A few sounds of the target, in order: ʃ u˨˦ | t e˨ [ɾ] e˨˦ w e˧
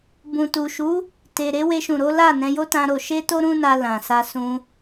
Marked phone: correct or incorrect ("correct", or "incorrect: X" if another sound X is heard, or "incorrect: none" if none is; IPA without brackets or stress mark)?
correct